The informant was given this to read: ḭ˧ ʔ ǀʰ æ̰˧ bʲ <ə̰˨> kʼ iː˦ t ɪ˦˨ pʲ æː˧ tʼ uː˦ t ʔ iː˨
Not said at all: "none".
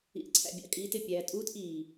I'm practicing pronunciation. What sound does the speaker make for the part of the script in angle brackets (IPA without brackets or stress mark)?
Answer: ɑ̰˨